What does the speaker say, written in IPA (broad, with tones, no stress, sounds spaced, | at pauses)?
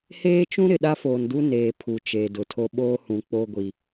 h eː˦ t͡ʃ ũ˦ ɾ ɪ˨ ɗ a˦ f oː˨ n d u˦ n eː˨ pʰ u˨ t͡ʃ eː˨ d ʊ˨ tʰ o˦ ɓ oː˦ h ũ˨ k͡p o˦ ɡʷ i˨